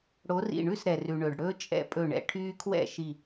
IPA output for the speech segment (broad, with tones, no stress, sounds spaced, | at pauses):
ɽ o˨˥ r ḭ˧˩ ɳ ʉ˥˩ s ɾ ɛ˩ r ʉ˩ ɳ ɵ˩ ɖ ɽ ɵː˦ t͡ʃʼ ɛ̰˦ pʼ ɵ˧˩ ɳ ɛ̰˩˧ ʈʰ yː˦ kʰ w ɛ̰˥˩ ʃ i˧˩